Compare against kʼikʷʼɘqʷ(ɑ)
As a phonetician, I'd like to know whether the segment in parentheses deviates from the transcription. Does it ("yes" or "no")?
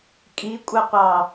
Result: no